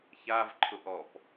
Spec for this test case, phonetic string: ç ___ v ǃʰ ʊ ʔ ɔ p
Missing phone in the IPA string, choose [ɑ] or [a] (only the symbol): a